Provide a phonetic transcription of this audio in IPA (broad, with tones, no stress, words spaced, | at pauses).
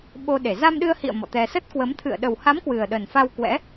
ɓo˧ɗe˧˩ za˧mɗɨ˧ə̯hḭ˧˨ə̯ mɔ̰˧˨t̪ɛ˧ sə˦˥t̚kwə˨˦mt̪ʰɨ̰˧˨ə̯ ɗə˨˩wha˨˦m kwɨ˨˩ə̯ɗə˨˩nfa˧wkwɛ̰˧˥